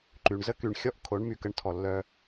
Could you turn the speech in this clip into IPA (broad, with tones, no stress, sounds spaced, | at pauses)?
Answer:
ǃ y˨ ɳ z ə˦ k y˨ ɳ xʲ ɔ˦ ʔ kʰ o˨˦ ɳ m y˨ k ə˦ ɳ tʰ ɔ˨ lː œ˦